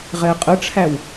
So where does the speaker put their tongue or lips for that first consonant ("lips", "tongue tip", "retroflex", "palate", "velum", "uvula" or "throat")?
uvula